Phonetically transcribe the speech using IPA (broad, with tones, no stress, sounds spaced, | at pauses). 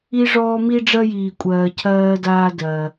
i˥ ʐ ɔː˥ m i˥ ɖ͡ʐ ɜ˥ j iː˧ kʷʼ ɜː˧ cʰ ɜː˥ d aː˥ d ɜː˧